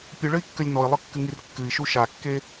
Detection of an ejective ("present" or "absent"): absent